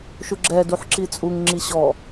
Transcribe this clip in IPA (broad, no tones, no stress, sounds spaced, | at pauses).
ʃ u ɡ͡ǁ ɛ d u ħ ǁ i t͡sʼ u ŋ ŋ͡ǁ i ɕ ɔ